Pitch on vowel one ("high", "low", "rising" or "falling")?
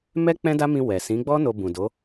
high